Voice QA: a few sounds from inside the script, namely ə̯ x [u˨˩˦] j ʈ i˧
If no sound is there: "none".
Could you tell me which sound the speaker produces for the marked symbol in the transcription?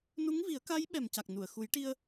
u˨˩˦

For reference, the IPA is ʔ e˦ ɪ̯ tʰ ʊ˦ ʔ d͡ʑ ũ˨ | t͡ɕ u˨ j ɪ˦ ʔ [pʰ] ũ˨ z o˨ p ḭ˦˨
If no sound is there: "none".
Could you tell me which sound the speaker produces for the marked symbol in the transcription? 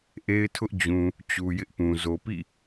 p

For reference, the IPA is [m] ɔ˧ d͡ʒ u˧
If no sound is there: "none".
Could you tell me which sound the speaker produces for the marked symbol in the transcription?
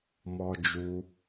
m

